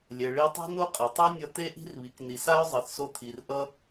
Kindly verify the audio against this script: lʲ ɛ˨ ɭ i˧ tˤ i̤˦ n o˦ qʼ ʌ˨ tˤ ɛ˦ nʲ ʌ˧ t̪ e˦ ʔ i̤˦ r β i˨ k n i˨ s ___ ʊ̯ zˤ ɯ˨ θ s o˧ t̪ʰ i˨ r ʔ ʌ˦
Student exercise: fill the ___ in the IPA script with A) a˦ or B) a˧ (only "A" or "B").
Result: A